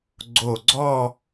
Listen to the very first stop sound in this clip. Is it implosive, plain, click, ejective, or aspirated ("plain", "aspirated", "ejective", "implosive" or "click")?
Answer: click